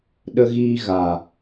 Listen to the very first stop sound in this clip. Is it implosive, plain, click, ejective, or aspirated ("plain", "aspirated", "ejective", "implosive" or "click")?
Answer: implosive